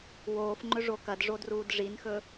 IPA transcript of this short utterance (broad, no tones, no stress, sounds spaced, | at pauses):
w oː f ŋ͡ǃ ɵ ʐ o k ɐ d ʐ o d r uː d ʐ i n x ɵ